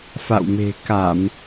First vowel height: low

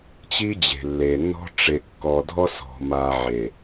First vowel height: high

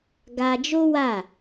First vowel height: low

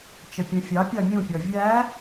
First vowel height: mid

